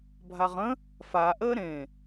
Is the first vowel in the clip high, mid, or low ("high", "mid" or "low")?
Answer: low